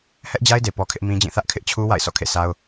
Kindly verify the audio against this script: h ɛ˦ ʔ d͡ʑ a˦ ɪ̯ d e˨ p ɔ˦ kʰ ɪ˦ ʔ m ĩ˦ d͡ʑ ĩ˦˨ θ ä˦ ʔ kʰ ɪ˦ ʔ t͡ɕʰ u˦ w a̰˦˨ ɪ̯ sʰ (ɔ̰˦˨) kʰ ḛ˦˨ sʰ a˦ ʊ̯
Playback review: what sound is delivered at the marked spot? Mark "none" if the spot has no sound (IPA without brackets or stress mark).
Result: ɔ̰˦˨